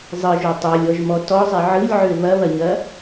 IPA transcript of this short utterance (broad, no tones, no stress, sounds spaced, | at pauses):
zˤ ɯ ʒ o tˤ o lʲ ɔ ʒ m ɔ t ɔ zˤ i ʕ ɯ lʲ ʕ ø β ɐ β ɐ ɲ ɐ